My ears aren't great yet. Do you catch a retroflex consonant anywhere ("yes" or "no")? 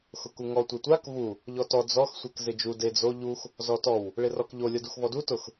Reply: yes